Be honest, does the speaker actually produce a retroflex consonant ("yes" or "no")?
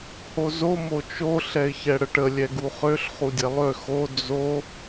yes